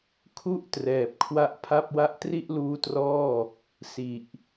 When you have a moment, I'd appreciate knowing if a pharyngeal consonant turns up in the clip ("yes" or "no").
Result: no